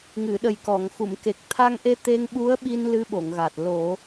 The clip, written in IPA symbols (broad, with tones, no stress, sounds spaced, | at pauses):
ŋ ɨ˨˩˨ ɗ ə˨˩ j k ɔ˨˩˨ ŋ x u˨˩˨ m k e˨˩ k̚ t̪ʰ a˧ ŋ ʔ e˧ t̪ e˧ ŋ ɓ u˧˥ ə̯ ɓ i˧ n l ɨ˧˥ ɓ o˨˩˨ ŋ ɣ a˨˩ t̚ l o˨˩˦